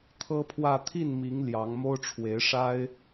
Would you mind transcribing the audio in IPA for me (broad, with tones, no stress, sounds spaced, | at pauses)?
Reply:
t̪ʰ ɤ˥ pʰ w ä˥˧ t̪ʰ i˥˩ n m i˧˥ ŋ l j ɑ˧˥ ŋ m o˥ ʊ̯ ʈ͡ʂʰ w e˧˥ ɪ̯ ʂ a˥ ɪ̯